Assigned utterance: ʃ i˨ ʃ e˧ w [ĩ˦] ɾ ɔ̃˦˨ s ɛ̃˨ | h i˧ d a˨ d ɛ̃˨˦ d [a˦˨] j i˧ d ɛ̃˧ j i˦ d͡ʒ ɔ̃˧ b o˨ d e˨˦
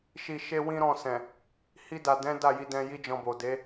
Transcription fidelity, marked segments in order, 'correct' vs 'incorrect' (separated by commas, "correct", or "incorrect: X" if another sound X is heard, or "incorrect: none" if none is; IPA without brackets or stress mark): correct, correct